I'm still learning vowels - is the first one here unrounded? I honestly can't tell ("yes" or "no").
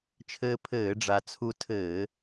yes